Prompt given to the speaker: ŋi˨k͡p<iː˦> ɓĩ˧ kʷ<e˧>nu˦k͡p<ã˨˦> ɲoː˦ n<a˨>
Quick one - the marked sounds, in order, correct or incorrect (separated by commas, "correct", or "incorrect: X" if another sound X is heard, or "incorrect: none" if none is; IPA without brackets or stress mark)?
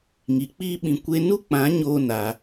correct, correct, correct, incorrect: a˧